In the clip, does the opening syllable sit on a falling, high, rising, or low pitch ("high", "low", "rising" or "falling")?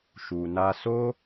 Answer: low